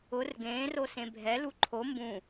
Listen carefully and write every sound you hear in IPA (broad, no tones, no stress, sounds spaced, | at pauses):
ʊ r ɡ ẽː r o s ẽ bʱ ɛ l u ǃʰ o m b ũ